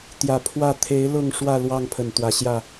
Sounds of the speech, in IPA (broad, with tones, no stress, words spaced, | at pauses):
t̪jä˨˩ pʰwä˥˨ t̪ʰe˨˦ɪ̯ lʊ˥˨ŋʂwä˥˨ lwɑ˥˨ŋpʰə˨˩nt̪wä˨˦ɕjä˥˨